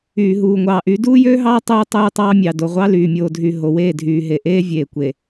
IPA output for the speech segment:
yː˨ ɦ uː˨ ŋʷ ɑː˨ ʔ y˨˦ d uː˦ j øː˦ ɦ ɑː˦ tˤ uː˦ tˤ yː˦ tˤ ɑː˦ mʲ ɑ˨ d o˨ ʁʷ ɑ˦ l yː˨ mʲ oː˨ dʱ y˨ ɦ o˨ w eː˦˨ dʱ yː˨ ɦ e˨ ʔ eː˦ vʲ eː˨ kʷ e˨

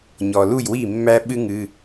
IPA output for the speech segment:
ɲ ɔ˩ l u˥˩ j w i˥˩ mː æ˥ ɓ ɨ˥ ŋ ɨ˩˧˩

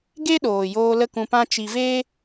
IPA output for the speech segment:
ɡ e˦ ɗ oː˨ j oː˧ l ə˦ k ũ˧ p ã˦ t͡ʃ i˧ v eː˦

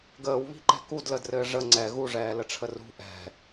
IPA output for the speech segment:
ɡ əː w β i̤ ǃ ɛ̤ k u d l ə d r ɘː ʐ ə ŋ͡ǀ ɛ ɣ u ʐ ɛː l ə ʈ͡ʂʰ ə r ṳ ʔ ɛ̤

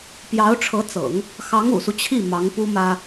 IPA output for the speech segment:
p j ɑ˧˥ ʊ̯ ʈ͡ʂʰ ɤ˧˥ t͡s ɤ̰˨˩˦ ŋ | x ɑ˧˥ ŋ ṵ˨˩ s u˦ t͡ɕʰ i˥˩ m ɑ˧˥ ŋ p u˥ m ä˥

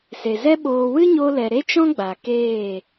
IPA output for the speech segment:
s e˨ z ɛ˦ ɓ oː˧ w ɨ˦ ɲ o˧ l ɛ˨ ɾ e˦ t͡ʃ ɔ̃˦ ɡ͡b a˨ k eː˦˨

